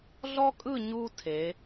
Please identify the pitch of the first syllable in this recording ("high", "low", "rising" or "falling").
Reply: high